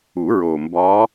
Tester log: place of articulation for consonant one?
alveolar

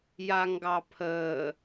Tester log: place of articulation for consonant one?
palatal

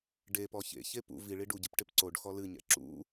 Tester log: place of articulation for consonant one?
retroflex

